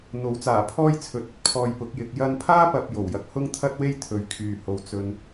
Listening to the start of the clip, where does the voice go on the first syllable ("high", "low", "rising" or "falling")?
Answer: rising